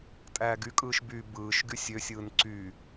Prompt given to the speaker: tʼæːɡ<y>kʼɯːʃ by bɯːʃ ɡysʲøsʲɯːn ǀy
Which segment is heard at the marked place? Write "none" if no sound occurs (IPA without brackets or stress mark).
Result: y